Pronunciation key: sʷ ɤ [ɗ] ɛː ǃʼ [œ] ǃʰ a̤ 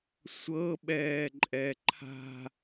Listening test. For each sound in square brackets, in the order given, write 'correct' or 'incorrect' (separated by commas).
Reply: incorrect, incorrect